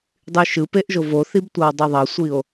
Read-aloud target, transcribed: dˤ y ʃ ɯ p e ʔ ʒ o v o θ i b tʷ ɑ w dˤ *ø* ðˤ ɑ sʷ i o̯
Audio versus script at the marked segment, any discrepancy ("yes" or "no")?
yes